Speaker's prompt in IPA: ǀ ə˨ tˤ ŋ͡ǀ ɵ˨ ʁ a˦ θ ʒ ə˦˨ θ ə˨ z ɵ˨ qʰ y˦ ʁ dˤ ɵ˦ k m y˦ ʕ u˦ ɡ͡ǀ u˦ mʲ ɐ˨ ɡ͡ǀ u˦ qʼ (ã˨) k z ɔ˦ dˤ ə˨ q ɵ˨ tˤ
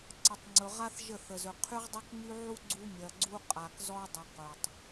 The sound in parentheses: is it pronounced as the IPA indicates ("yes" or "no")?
no